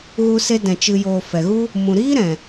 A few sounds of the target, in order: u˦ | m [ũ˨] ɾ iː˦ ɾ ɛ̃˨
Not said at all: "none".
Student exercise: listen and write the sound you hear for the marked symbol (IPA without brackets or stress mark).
ũ˨